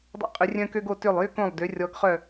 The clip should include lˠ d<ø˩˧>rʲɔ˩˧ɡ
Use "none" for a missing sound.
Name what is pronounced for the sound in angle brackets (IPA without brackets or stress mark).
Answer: ø˩˧